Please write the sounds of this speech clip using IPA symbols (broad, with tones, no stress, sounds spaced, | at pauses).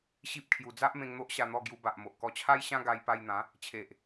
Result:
ɕ i˦ p̚ kʰ j u˧ d͡z a˦ ʔ m ẽ˧ ŋ n̪ o˦ ʔ ɕ a˧ n̪ ɔ˥˧ ɡ j u˧ b a˨ ʔ m o˨ ʔ k ɔ˧ t͡ɕʰ a˦ j ɕ ã˦ ɡ a˧ j p a˧ j n̪ ã˨˦ | t͡ɕʰ e˨ ʔ